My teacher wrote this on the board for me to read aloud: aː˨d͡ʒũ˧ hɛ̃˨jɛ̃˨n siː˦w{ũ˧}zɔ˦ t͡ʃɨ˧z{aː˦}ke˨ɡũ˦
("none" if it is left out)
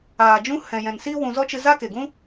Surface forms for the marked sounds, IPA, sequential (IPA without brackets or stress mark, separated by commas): ũ˧, a˦